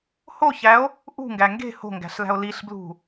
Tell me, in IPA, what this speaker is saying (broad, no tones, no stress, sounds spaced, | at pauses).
h o ç æ o̯ | ʔ ṳ ŋ ɡ æ ŋ ɡ e̤ h o̤ ŋ ɡ æ̤ ɬ l æ̤ o̯ l i ɬ b l ṳ